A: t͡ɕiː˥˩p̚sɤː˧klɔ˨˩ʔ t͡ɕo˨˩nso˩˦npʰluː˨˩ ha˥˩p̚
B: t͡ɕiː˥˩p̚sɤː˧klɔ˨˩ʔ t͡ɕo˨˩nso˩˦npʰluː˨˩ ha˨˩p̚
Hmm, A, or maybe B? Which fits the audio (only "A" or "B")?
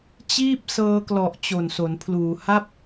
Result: A